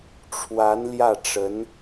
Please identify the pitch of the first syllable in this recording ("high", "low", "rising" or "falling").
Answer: rising